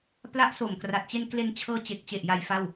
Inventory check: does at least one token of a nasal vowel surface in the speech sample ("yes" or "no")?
no